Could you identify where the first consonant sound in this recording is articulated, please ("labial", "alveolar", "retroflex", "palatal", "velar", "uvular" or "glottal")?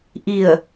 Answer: glottal